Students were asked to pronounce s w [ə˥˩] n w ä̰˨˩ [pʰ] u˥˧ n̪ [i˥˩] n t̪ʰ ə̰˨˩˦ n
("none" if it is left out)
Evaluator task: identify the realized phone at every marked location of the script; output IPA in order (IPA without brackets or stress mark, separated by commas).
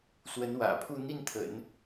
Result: ə˧˥, pʰ, i˥˩